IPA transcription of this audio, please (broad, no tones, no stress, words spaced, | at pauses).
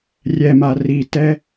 rʲɛma ritɛ